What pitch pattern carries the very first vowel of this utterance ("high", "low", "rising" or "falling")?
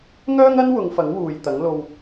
high